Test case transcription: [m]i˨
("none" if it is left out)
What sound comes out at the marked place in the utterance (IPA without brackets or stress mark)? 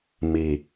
m